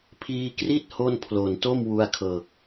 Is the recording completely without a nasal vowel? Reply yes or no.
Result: yes